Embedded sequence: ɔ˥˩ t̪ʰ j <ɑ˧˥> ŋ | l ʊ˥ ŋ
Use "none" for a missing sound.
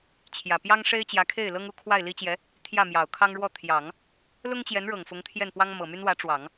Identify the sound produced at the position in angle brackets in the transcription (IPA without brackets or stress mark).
ɑ˨˩˦